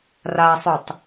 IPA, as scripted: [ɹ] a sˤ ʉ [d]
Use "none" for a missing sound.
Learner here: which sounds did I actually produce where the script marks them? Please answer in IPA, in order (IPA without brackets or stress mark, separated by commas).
r, tˤ